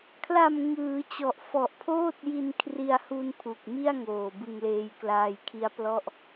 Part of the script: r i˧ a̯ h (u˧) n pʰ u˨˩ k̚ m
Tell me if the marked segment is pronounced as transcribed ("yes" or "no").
yes